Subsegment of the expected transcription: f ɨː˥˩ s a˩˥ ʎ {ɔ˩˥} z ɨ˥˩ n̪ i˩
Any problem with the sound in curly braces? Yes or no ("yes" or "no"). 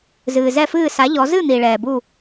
no